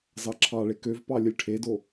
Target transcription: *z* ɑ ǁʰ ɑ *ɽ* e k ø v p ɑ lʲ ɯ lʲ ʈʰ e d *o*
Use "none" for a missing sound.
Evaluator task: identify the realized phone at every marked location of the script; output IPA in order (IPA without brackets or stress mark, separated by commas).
z, ɭ, o